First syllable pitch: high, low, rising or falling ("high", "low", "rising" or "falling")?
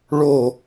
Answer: falling